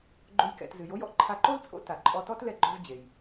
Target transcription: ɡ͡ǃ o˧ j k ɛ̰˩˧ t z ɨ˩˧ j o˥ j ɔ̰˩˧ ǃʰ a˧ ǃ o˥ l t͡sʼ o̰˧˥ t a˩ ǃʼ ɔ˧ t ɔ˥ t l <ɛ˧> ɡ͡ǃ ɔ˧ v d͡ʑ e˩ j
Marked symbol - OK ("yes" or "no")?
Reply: yes